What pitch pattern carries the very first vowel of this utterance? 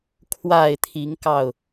low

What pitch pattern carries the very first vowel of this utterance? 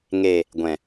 low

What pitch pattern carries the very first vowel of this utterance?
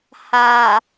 low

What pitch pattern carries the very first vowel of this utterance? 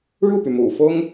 falling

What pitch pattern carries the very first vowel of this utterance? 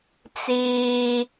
high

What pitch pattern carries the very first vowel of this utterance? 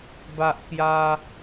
high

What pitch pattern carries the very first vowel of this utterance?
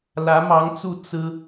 rising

